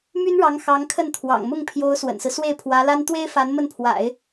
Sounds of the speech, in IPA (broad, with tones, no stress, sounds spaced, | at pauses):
m y˥ n ɻ ɑ˧˥ ŋ x ɑ˧˥ ŋ kʰ ə˥˩ n t̪ʰ w ɑ̰˨˩ ŋ m ʊ˥˩ ŋ pʰ j o˧˥ ʊ̯ s w ə̰˨˩ n s ɹ̩˦ s w e˥˩ ɪ̯ pʰ w ä˧˥ l a˥ n t̪ w e˥ ɪ̯ f a˧˥ n m ə˥˩ n pʰ w a̰˨˩˦ ɪ̯